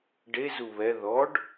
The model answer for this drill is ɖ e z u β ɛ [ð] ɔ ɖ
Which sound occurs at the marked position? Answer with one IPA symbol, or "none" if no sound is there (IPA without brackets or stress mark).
ð